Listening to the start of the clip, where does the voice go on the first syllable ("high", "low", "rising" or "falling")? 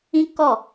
high